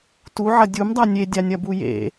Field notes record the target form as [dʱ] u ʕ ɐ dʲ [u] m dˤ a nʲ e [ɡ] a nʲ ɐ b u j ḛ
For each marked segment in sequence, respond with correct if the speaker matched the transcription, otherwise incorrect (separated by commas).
incorrect, correct, incorrect